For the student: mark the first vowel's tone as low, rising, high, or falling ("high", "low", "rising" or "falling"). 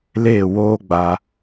falling